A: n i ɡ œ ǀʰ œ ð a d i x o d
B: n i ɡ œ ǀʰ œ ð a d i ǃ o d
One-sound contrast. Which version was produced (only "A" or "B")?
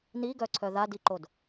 B